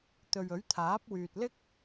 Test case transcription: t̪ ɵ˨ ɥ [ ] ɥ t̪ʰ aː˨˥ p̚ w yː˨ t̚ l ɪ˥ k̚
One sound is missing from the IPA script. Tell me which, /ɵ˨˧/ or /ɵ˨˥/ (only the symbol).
ɵ˨˥